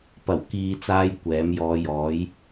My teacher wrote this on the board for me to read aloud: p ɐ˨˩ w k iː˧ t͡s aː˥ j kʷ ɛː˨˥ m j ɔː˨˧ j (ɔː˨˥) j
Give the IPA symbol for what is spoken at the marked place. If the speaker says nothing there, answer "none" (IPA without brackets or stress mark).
ɔː˨˥